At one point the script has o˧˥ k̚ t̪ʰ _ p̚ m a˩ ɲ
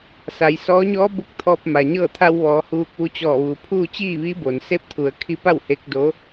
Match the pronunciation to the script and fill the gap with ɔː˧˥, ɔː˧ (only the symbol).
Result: ɔː˧